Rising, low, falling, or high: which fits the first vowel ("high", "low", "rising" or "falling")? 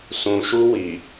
low